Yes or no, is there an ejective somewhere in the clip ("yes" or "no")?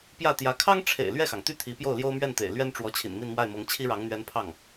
no